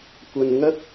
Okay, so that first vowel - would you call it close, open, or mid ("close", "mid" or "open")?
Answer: open